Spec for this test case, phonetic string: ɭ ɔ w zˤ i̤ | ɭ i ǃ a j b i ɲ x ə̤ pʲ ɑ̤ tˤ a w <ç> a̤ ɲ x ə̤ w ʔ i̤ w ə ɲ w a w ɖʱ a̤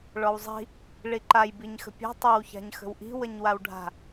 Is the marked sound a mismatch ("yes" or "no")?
no